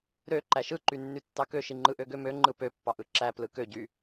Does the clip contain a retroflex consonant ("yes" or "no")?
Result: no